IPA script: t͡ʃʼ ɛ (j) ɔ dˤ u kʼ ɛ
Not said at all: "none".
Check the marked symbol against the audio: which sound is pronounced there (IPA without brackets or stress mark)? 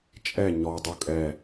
ɲ